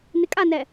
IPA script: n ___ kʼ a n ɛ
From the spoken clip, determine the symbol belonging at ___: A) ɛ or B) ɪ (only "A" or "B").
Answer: B